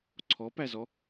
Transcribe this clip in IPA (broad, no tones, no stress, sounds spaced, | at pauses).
ǀʰ ɔ p æ z ɔ